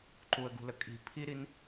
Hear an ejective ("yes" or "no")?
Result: yes